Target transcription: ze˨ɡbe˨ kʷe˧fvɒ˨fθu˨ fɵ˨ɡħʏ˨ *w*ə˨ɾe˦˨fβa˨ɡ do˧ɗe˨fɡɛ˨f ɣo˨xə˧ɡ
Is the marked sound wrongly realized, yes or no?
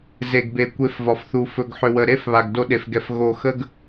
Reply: no